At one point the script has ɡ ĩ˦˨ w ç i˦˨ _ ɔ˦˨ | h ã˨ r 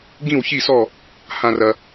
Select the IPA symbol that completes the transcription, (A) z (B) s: B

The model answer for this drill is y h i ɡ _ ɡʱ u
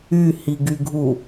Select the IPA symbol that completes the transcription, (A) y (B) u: A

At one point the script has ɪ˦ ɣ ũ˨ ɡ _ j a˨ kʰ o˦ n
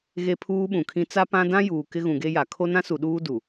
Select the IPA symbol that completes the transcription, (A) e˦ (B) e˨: A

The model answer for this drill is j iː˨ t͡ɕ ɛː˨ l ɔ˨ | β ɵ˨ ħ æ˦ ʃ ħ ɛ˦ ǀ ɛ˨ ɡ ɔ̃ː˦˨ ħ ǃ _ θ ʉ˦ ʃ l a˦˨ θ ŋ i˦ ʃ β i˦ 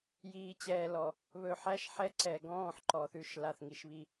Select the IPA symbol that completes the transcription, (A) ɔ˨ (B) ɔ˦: A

